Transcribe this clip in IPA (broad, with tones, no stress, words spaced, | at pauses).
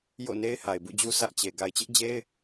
jo̰˦˨ ne˦ɪ̯ha˨ɪ̯bṵ˦˨d͡ʑu˦ sä˦ʔt͡ɕe˨ ɡa˨ɪ̯t͡ɕɪ˦ʔd͡ʑe˦ɪ̯